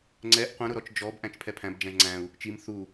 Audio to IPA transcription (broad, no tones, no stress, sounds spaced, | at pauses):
ŋ͡ǀ ɛ ʔ qʷ ə̃ ɾ ʊ ɾ ɔ t͡ʃ d͡ʒ ɔ b ʔ æ̃ t͡ʃ pʰ ɛ pʰ æ̃ b d͡ʒ æ̃ ʒ ŋ͡ǀ æ̃ u̯ | t͡ʃ i m θ u